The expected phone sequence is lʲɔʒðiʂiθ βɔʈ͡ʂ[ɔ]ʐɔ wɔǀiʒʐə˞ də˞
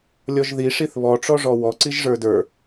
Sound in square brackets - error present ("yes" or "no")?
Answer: no